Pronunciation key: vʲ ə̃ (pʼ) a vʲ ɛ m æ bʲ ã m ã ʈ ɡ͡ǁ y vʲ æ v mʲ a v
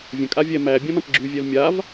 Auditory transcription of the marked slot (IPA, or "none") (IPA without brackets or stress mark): kʼ